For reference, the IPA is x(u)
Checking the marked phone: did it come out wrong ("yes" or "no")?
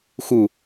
no